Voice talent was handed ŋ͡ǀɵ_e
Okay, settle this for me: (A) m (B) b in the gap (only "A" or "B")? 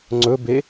B